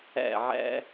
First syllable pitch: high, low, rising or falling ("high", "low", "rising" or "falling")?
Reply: falling